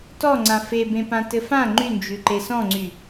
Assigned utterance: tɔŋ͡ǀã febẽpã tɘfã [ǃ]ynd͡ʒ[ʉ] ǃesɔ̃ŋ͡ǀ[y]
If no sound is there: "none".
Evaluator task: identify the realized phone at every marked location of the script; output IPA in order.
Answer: ŋ͡ǃ, ʉ, y

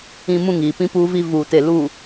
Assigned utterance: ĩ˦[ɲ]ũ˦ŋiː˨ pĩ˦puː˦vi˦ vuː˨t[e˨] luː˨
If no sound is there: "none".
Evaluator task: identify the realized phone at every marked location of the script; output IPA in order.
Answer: m, e˨

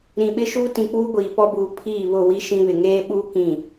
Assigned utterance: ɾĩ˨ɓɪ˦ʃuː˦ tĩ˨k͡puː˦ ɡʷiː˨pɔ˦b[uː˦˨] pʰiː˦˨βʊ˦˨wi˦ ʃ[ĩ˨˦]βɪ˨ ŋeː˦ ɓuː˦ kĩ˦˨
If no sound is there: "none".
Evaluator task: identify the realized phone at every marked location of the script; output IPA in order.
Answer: uː˨, ĩ˦

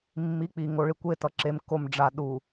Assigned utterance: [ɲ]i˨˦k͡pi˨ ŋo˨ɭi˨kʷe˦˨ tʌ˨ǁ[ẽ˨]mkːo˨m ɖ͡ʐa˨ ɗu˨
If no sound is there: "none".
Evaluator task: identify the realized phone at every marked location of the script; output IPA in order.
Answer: mː, e˨

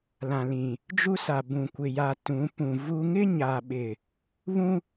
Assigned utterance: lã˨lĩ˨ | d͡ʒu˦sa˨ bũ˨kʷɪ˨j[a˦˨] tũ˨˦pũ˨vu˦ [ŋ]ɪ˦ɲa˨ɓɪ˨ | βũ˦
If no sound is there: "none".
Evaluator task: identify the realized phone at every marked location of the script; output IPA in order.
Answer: a˨, ŋ

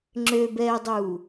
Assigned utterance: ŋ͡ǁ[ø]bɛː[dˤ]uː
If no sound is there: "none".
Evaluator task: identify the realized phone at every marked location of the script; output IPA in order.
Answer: ø, dˤ

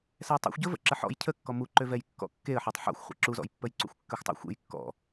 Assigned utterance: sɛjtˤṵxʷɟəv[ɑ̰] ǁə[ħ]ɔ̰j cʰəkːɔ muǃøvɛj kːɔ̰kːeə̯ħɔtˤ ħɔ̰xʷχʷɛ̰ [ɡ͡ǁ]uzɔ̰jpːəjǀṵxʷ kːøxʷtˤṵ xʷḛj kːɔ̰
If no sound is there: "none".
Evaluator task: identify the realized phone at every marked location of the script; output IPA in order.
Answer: ə̰, ħ, ǁ

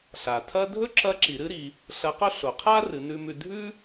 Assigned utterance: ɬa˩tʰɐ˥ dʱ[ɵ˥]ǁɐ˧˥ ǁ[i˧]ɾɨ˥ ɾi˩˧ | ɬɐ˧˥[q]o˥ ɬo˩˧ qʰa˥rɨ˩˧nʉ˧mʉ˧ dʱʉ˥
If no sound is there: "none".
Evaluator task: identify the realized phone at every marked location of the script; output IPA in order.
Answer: ɵ˥, i˩˧, q

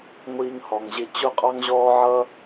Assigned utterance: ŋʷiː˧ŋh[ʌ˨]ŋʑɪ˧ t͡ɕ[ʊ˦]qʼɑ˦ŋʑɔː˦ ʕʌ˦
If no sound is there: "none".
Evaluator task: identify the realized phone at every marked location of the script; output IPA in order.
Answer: ɔ˨, ʊ˦

